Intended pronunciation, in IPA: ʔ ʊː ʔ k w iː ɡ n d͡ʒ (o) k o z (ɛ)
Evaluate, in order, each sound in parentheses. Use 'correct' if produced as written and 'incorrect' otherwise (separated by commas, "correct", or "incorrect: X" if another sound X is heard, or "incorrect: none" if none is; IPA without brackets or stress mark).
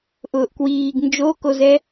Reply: correct, correct